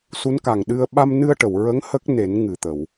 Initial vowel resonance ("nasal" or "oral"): oral